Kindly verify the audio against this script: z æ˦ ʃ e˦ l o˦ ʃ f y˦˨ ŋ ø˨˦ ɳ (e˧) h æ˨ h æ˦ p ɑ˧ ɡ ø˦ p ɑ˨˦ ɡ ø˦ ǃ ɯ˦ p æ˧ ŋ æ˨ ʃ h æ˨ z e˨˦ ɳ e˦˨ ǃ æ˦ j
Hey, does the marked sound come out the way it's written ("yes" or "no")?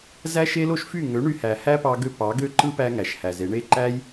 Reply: no